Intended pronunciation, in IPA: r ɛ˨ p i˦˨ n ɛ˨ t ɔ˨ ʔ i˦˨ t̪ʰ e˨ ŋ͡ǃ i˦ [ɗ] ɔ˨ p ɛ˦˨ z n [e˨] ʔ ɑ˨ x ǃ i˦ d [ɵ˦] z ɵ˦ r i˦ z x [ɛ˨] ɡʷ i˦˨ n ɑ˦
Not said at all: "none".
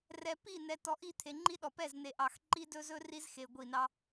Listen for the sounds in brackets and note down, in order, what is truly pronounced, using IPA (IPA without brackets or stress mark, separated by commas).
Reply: ɗ, e˨, ɵ˦, e˨